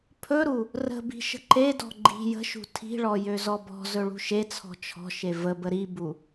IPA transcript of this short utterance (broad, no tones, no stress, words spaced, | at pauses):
pʰɵɾu | rə̤bi̤ ʃə̤ǃedɔ̤ ɡ͡ǃi̤ jə̤ʃṳ tʰi̤ɭɔ jøzɔbɔ̤zɵ ɭṳʃet͡sʰɔ̤ t͡ʃʰɔ̤ʃe vəbə ɾibu